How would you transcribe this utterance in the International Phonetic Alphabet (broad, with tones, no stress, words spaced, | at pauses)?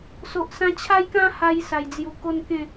so˨ʔsã˧t͡ɕʰa˦jkã˦ ha˧j sa˨˩jd͡zju˨˩ko˦nkẽ˥˧